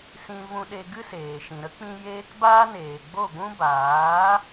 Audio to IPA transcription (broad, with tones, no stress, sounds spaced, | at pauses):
s ĩ˧ v ũ˧ ɗ e˧ ɡ ɨ˦ s eː˨ ʃ ĩ˨ ɾ ə˦ k͡p ĩ˧ j eː˦ k b aː˦ n eː˨ ɡ͡b o˦˨ ɡʷ ũ˦ b aː˨˦